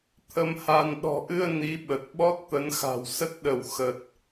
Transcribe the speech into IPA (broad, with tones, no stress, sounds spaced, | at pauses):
t̪ʰ ə˧ m h a˧ n ɗ ɔ̤˨˩ ʔ ɨ˧ ə̯ n i˨˦ ɓ ə˨˩ t̚ ɓ ɔ˦˥ t̚ t̪ ə˨˦ n x a̤˨˩ w s ə˦˥ t̚ ɗ ə˧˩ w x ə˨˩ t̚